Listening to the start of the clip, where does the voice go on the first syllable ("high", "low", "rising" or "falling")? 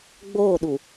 falling